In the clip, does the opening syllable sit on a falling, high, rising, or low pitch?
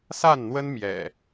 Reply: falling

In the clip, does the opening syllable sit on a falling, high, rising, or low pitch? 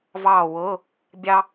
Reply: falling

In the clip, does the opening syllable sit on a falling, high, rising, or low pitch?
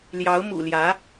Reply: rising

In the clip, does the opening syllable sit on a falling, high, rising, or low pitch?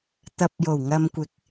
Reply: low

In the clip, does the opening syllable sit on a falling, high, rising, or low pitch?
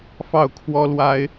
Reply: falling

